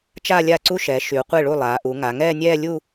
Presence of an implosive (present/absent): absent